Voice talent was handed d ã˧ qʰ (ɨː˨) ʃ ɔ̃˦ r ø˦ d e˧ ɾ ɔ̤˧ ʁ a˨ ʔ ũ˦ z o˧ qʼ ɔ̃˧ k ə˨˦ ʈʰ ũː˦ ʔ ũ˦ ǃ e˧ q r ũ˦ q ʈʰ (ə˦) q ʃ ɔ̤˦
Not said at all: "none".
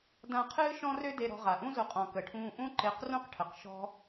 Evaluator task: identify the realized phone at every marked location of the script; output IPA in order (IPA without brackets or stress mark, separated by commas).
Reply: ɨː˦, ə˨